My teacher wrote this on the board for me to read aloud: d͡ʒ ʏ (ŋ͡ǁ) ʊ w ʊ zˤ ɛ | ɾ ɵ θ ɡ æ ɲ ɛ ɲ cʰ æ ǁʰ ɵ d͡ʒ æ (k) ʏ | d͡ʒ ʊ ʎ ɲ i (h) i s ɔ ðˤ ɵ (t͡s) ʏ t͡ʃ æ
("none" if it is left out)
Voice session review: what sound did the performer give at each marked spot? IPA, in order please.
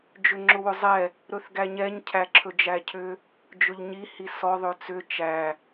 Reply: ŋ͡ǁ, cʰ, h, t͡s

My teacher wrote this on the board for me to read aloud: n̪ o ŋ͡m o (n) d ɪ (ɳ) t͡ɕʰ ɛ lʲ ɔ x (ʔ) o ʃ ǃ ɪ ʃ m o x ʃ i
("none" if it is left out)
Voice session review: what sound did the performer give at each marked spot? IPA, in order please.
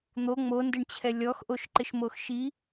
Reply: n, ɳ, ʔ

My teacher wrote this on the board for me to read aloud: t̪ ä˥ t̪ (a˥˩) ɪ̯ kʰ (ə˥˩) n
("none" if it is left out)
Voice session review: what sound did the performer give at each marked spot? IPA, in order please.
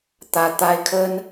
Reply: a˥, ə˥

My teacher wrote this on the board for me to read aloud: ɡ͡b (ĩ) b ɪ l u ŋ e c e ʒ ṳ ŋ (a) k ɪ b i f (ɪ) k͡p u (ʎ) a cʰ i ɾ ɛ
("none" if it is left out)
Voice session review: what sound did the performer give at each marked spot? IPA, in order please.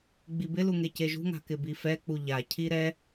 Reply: i, a̤, ɛ, ʎ

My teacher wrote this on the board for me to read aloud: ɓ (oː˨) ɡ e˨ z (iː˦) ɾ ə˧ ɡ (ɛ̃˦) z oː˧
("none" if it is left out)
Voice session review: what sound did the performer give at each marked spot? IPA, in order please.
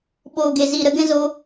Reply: oː˨, iː˨, ɛ̃˦

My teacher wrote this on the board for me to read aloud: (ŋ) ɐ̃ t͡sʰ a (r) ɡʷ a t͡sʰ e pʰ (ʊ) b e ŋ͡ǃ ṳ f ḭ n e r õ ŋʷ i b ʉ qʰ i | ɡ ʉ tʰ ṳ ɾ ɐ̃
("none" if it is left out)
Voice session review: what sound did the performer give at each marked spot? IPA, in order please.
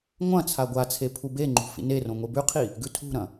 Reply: ŋʷ, none, u

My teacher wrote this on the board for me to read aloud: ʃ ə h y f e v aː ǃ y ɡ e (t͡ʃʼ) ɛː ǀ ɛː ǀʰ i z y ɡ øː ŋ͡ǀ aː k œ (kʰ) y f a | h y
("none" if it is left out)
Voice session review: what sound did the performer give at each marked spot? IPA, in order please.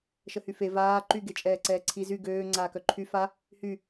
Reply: t͡ʃʼ, ǃʰ

